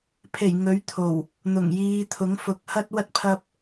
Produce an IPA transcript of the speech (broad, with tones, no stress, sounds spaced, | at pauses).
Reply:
pʰ e˨˩ j ŋ ɵ˨˥ ɥ t̪ʰ o˨˩ w | n̪ ʊ˨˩ ŋ j iː˨˧ t̪ʰ ʊ˨˥ ŋ f ʊ˨˥ k̚ h ɐ˥ t̚ w ɐ˥ t̚ pʰ ɐ˥ p̚